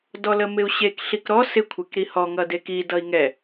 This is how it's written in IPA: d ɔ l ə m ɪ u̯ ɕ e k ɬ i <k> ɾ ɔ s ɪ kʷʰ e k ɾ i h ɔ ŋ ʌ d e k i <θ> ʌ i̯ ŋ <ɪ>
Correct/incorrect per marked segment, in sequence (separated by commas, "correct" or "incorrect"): correct, incorrect, incorrect